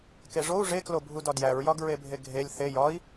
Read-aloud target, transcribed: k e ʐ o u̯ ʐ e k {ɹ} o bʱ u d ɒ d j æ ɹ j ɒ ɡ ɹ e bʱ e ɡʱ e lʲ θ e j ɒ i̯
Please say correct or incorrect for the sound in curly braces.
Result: incorrect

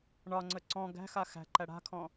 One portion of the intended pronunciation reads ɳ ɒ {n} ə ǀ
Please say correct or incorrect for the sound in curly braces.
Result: incorrect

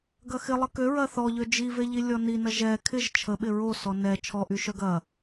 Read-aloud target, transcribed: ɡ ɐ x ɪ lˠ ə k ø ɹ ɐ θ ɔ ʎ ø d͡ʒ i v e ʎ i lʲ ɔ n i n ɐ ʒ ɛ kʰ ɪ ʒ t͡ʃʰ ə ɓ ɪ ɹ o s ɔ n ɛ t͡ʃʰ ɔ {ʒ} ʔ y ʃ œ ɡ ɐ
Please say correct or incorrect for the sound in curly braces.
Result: incorrect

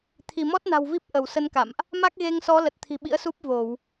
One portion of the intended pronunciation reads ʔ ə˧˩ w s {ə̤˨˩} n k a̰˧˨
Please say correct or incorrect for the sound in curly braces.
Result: incorrect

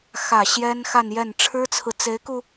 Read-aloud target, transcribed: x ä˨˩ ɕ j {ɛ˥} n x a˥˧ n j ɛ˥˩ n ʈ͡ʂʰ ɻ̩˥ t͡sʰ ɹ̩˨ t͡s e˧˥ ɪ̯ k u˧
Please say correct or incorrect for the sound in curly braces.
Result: correct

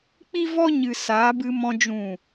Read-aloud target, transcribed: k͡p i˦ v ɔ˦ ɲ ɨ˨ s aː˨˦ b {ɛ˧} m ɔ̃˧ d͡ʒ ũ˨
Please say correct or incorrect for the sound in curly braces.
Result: incorrect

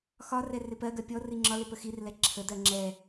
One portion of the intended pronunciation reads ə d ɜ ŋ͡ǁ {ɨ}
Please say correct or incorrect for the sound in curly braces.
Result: incorrect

